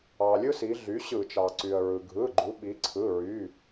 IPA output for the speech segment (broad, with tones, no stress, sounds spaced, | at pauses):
ɑ˩ lʲ ɯ˦ s i˩˧ ɮ y˩˥ ɕ ɯ˧˩˧ t͡ʃ ɑ˩ ǀ y˩ ə̯ ɹ ɯ˩ ɡʱ ɯ˩˧˩ ɡ͡ǃ u˩˧ ɓ i˩˧ ǀʰ ɯ˩˧˩ ɹ y˩˧˩